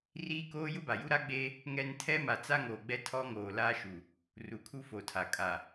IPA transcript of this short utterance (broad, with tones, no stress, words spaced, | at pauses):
riː˦koː˦ jʊ˦ba˨ju˦ ɾa˦ɡ͡beː˦ | ŋɛ˦n tʰɛ˦ma˨ t͡sa˦ŋoː˨ɡ͡bɛ˦ tʰɔ˦ŋoː˨la˦ʃu˨ | ru˨kʰu˦fo˨tʰa˨ kʼa˨